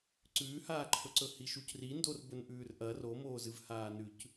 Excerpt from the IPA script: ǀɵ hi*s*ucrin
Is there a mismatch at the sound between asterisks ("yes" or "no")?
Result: yes